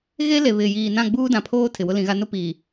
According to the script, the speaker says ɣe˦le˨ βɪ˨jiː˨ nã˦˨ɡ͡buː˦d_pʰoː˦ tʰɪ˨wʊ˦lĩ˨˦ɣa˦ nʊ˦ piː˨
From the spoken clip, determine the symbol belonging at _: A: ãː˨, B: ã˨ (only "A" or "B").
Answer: B